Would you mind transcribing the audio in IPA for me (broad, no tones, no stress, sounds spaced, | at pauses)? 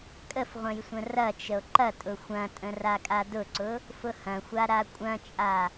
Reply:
kʼ ə f ʁʷ ə̃ j sʷ ə̃ r ɐ t͡ʃ ə o̯ ǃ ɐ tʼ ʊ xʷ ɐ̃ tʼ ə̃ r a kʼ a d ʊ ǀ ʊ | f ʊ h ɐ̃ xʷ a ɾ a kʷʼ ɐ̃ t͡ʃʼ a